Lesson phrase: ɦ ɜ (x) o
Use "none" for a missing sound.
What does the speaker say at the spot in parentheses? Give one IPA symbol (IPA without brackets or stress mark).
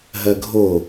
ɡʱ